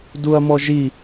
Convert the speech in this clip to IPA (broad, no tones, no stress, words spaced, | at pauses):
duɐ̯mɔʒi